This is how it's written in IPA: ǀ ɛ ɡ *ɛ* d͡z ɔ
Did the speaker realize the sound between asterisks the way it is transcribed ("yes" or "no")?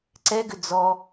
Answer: no